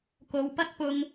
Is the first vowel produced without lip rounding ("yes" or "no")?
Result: no